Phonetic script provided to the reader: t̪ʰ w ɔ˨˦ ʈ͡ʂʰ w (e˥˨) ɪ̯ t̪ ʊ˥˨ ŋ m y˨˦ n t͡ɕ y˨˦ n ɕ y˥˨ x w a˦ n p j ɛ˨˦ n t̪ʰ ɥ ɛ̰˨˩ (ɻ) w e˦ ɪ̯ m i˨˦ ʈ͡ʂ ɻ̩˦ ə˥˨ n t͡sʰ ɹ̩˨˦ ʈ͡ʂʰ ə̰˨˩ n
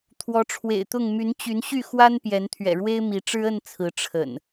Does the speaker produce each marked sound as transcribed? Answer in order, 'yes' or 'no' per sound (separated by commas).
no, yes